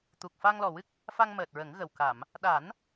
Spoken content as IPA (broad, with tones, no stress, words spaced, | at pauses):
t̪u˨˩k̚fa˧ŋlɔ˨˩wɨ˦˥k̚ | fa˧ŋməː˨˩t̚ɹə˨˩˦ŋ ɣə˨˩w ka˨˩˨m | ɗa˨˩˦n